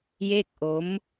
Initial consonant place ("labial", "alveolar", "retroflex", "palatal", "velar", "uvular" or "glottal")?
palatal